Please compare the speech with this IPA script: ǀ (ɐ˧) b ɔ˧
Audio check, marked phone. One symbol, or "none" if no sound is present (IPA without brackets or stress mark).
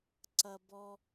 ɐ˧